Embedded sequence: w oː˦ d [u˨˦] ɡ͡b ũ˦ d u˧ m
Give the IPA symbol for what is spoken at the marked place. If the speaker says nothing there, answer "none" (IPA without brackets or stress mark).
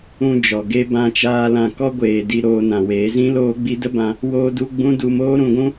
u˦